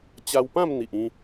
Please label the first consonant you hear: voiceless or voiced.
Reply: voiceless